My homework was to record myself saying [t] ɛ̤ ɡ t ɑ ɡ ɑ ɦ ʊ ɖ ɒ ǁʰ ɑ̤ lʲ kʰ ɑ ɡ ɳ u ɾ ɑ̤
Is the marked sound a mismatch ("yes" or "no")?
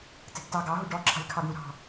no